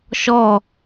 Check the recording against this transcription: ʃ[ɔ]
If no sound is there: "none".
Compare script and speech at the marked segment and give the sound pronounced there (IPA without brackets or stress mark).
ɔ